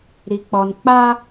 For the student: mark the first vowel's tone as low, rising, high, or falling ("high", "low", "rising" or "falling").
low